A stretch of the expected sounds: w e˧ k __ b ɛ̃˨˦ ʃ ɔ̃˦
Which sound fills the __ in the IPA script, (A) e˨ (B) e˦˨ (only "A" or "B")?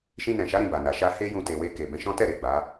A